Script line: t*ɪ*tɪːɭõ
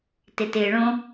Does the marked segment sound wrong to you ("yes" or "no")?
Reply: no